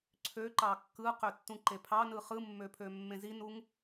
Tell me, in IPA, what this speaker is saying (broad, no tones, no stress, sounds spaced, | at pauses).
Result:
ǀʰ ø ǃ ɑ kː ɯ q ø tː ũ ǃ e pʰ ɑ n ɯ χ ɯ mː ø pʰ ø mː ẽ z i n u ŋ